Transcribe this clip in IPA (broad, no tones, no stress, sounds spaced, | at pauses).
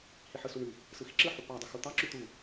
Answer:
h i ħ ɯ s u ɳ y | s ɯ x i ǁ ɯ ħ u p ɑ dˤ ɯ x u t̪ ɑ ǁ y t̪ u